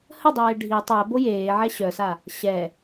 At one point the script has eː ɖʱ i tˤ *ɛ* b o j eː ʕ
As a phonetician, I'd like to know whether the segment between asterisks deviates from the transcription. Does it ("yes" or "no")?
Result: no